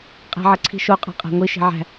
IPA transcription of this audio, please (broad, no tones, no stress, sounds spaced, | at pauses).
qʼ æ̤ ʕ ɐ ǀʰ i̤ ʃ o qʼ ɑ̤ qʼ æ̤ ŋʷ i ʃ i̤ ʕ æ̤